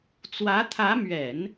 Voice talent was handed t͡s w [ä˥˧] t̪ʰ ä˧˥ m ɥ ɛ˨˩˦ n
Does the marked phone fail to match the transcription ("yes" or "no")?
yes